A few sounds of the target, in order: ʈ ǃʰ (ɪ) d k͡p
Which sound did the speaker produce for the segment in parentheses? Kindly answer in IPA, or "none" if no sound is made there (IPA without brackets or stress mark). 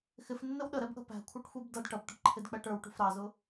ɪ